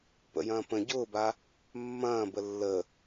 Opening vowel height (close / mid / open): mid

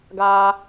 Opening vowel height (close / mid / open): open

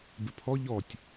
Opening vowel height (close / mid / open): close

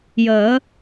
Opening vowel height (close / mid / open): mid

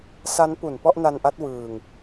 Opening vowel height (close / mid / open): open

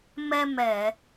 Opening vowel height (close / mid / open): mid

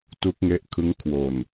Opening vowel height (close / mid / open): close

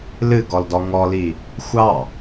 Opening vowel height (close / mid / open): close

